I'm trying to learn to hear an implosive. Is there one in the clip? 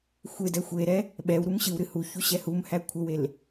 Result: yes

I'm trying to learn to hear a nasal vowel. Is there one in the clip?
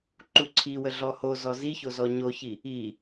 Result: no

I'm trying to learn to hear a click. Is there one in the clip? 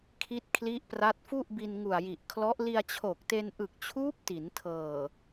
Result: no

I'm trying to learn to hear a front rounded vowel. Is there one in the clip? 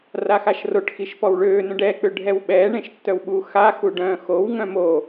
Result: yes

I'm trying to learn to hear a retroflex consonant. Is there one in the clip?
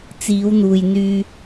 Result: no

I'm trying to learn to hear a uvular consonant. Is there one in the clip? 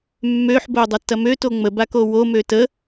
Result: no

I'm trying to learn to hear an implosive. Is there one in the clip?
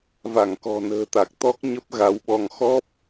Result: yes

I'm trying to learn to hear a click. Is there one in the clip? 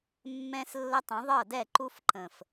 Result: yes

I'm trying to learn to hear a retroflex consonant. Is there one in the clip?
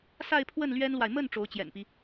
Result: yes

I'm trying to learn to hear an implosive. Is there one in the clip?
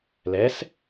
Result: no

